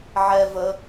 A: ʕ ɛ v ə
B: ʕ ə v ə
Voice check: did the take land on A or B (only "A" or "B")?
A